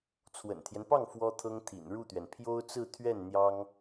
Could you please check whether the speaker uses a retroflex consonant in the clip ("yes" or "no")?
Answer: yes